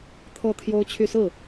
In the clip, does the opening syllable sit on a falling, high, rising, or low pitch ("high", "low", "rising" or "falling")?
falling